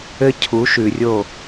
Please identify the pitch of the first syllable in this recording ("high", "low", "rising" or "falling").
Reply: high